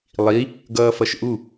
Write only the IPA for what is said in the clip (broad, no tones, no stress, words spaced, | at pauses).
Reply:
lˠi | ɡʌːfʌʃʔu